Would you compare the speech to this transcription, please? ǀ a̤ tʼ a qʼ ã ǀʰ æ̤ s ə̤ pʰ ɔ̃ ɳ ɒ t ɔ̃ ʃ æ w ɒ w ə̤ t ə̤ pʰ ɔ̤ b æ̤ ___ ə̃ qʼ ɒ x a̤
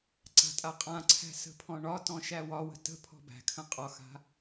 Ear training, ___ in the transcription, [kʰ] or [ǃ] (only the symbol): kʰ